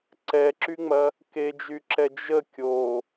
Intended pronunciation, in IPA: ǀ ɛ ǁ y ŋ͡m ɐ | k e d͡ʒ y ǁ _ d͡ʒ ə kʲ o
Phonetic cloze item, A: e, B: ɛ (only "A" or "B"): B